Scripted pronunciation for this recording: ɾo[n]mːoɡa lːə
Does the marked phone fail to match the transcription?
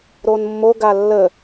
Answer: no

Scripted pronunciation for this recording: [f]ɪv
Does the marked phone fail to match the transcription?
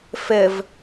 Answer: no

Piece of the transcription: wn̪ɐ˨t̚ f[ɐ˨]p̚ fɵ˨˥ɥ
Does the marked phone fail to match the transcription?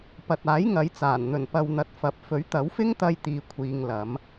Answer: no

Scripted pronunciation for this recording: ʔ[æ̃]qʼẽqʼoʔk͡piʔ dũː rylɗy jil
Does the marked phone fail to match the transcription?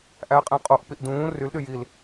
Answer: yes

